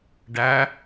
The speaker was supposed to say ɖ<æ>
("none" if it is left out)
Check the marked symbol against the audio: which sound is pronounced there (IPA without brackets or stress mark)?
æ